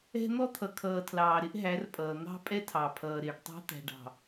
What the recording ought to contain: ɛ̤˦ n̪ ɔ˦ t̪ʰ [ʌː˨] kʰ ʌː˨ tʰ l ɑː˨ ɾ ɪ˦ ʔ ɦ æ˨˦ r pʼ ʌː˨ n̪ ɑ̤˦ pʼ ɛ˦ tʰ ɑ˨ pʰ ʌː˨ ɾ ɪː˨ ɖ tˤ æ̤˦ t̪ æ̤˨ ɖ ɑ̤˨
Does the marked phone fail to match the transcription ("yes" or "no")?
yes